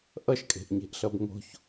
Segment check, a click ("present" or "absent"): absent